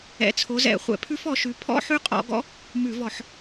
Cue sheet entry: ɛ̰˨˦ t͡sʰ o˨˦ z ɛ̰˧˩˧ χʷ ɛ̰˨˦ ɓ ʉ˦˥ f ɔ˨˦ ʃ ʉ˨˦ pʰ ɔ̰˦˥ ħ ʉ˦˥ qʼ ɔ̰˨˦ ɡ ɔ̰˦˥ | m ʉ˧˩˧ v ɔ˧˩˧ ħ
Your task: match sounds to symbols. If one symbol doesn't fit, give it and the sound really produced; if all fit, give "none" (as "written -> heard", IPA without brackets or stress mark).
ɓ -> pʰ